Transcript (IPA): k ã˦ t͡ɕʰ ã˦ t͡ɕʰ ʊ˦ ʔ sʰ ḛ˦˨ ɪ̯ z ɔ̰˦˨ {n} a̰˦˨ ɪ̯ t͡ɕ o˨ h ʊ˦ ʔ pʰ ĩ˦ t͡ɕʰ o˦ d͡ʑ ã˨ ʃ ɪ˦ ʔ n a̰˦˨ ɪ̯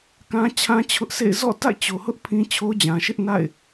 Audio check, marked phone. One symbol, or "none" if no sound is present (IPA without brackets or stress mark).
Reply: t